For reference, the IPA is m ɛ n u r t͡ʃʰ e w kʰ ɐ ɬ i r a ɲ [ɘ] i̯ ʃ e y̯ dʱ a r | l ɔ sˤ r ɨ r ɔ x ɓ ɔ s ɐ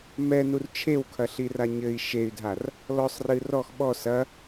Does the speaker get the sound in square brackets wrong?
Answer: no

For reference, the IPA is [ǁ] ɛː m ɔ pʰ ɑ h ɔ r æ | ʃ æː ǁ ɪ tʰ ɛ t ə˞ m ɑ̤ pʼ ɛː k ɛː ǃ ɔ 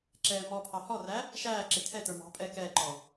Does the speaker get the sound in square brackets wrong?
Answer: no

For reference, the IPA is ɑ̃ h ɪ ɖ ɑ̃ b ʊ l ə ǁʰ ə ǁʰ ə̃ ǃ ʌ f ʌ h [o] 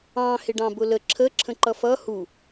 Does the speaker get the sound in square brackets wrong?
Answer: yes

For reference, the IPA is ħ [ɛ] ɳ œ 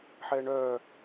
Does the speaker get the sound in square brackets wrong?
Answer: no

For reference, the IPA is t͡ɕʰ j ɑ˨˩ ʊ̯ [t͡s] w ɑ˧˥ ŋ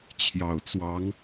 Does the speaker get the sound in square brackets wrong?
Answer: no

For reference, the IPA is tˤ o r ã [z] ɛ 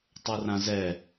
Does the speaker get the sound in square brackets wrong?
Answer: no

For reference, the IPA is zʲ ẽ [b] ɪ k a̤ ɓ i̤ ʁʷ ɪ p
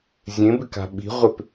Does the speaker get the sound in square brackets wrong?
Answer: no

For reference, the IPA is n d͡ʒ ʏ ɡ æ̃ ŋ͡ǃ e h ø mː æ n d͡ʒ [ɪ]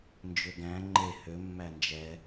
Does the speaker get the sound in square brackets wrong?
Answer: yes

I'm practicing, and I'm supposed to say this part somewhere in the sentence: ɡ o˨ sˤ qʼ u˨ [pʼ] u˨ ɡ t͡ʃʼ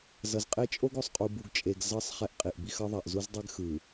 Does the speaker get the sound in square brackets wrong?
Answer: yes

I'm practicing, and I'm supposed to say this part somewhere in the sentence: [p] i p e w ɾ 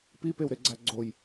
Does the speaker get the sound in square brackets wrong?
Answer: no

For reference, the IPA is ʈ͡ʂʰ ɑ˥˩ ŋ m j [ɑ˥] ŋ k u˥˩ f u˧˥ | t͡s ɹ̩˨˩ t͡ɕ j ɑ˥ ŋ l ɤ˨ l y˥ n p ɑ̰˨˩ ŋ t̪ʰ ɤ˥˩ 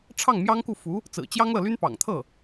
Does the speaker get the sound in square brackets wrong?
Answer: no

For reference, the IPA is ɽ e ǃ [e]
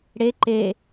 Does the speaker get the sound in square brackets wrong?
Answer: no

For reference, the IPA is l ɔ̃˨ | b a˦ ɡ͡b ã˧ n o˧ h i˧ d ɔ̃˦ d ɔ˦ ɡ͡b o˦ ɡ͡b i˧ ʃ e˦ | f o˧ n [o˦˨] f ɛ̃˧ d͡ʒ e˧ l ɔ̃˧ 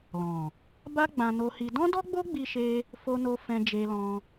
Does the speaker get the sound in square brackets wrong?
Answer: yes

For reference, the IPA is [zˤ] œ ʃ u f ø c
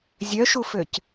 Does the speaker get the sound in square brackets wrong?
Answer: yes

